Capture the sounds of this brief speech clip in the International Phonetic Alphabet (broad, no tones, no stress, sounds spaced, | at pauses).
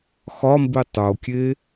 x ɒ m b i tˤ o kʲ e